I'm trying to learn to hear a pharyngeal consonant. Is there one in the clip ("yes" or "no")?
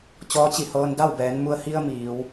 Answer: no